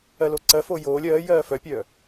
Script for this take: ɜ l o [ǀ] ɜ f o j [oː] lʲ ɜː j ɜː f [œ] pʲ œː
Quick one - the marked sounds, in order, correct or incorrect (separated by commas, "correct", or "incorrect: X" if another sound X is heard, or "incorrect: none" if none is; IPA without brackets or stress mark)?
correct, correct, correct